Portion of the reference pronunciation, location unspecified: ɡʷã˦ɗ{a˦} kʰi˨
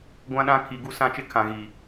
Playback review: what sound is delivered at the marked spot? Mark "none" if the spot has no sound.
ã˦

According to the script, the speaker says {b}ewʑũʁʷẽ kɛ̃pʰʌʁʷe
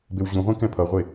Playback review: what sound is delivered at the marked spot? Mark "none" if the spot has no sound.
b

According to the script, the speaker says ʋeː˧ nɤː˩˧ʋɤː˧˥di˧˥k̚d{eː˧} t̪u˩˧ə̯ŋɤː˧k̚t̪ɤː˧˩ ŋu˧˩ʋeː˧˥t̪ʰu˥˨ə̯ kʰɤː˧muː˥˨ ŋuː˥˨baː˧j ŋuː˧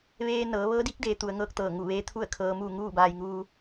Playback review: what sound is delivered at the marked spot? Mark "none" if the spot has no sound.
eː˩˧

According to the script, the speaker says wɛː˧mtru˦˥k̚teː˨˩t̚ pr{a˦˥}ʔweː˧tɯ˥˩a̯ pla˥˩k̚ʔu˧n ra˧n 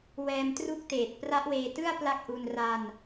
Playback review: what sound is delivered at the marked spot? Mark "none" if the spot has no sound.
a˦˥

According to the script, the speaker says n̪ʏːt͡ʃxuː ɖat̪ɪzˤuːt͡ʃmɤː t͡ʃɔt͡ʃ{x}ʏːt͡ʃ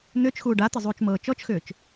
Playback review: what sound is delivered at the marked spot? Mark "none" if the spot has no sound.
x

